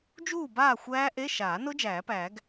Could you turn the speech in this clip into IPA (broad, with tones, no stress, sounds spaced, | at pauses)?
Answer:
d͡ʒ uː˥˨ b aː˥˨ xʷ æː˦˥ ʔ e˧˥˧ ʃ aː˨˩˦ n ʊ˦˥ d͡ʒ æː˨˩˦ p æː˨˩˦ ɡ